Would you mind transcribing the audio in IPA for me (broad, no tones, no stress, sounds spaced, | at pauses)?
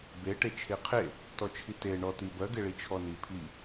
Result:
b e ʈ e t͡ʃʰ e qʰ e | t ɔ t͡ʃʰ i t e ɳ ɔ t i b ɜ ɡ e ɭ i t͡ʃʰ ɔ n i pʰ i